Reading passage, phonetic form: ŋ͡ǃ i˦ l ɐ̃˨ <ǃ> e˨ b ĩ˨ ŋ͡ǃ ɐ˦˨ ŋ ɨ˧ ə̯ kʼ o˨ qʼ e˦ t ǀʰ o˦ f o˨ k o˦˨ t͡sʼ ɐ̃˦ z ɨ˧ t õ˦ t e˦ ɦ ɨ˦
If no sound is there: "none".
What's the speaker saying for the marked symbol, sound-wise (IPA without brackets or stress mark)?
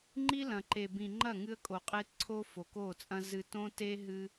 ǃ